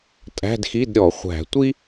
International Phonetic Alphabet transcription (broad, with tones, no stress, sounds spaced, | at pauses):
tʼ æ̤˧˥˧ d x i˧˥˧ d ɾʲ ɔ˧˩˧ χʷ æ̤˧˩˧ tʷ i˥